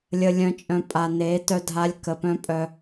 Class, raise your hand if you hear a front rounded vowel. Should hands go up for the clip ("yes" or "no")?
yes